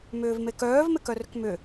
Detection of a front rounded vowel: present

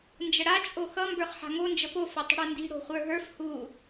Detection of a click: absent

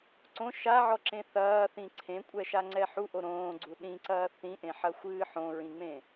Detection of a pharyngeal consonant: present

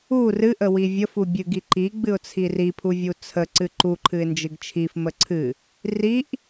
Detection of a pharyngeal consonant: absent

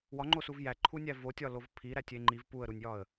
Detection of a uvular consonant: absent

